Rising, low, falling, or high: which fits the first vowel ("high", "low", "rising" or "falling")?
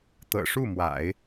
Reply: low